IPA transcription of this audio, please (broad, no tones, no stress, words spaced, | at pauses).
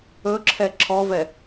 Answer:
ɵǁʰɛ ǁʰɔvɛ